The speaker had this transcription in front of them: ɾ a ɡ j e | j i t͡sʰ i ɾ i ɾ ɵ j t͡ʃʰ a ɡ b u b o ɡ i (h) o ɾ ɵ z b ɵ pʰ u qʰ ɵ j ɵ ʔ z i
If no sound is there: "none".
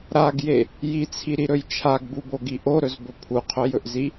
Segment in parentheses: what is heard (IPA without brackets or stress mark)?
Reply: ʔ